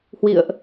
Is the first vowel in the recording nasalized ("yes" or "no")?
no